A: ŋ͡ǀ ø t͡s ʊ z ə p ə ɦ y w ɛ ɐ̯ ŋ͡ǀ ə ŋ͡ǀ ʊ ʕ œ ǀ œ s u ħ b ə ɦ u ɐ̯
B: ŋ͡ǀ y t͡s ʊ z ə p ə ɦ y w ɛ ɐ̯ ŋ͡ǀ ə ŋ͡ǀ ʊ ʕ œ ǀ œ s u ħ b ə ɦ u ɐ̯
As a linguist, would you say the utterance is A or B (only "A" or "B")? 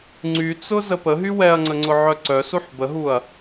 B